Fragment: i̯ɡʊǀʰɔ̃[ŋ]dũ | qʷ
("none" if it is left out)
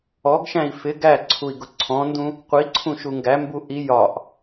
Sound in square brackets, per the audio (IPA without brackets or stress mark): n